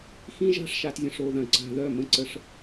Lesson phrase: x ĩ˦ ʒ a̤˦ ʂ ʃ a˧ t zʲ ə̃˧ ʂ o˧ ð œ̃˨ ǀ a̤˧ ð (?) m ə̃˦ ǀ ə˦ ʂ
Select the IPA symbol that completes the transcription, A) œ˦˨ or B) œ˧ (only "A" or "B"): A